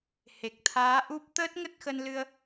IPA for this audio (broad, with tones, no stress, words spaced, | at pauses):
he˨˩k̚t̪ʰaː˨˦ʔu˦˥p̚ t̪əː˦˥t̚ŋə˦˥t̚xə˧n lɨ˧ə̯